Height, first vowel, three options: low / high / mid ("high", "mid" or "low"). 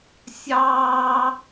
low